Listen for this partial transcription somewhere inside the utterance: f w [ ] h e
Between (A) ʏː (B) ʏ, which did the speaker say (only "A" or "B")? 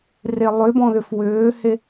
A